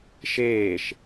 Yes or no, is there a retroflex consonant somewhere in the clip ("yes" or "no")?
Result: no